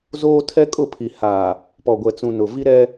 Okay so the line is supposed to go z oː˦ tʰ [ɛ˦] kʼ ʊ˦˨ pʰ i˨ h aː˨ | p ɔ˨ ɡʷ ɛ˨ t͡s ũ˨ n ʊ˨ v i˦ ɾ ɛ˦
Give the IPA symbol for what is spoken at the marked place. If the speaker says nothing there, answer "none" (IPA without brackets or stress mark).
ɛ˦